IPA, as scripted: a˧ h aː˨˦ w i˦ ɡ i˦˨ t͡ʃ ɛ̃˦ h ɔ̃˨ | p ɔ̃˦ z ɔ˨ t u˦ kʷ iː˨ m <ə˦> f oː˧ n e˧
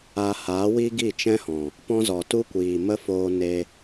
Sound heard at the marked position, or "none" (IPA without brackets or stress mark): ə˦